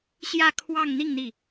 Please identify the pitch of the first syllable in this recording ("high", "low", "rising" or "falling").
falling